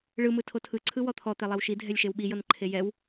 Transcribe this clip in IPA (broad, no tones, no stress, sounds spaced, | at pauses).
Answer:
ɭ ɯ m ɯ tʰ o tʰ ɯ ǀʰ ɯ w ɔ t̪ʰ ɔ t̪ e lˠ e w ʃ i dʱ ɛ lʲ ʃ e w ɓ i j ɤ n ǃʰ e j ɛ w